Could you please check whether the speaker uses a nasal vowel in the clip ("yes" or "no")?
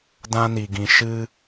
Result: yes